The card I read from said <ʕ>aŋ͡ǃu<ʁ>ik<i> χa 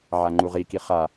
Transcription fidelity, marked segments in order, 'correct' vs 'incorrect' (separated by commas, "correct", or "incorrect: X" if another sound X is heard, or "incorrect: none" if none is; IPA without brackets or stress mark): correct, correct, correct